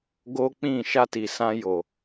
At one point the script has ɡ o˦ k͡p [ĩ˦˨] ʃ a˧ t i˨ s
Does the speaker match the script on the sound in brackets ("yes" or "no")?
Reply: yes